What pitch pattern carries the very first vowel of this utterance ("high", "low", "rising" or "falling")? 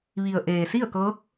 low